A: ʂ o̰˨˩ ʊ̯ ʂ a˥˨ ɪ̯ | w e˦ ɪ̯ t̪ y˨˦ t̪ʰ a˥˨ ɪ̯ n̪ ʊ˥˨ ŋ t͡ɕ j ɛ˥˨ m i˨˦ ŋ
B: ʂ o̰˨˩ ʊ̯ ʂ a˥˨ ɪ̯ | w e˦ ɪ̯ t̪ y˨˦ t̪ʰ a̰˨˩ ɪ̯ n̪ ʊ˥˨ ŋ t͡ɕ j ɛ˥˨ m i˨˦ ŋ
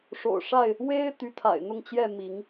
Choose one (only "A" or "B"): B